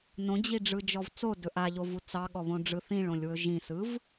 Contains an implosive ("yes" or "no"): yes